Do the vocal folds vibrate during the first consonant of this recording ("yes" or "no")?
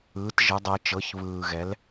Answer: no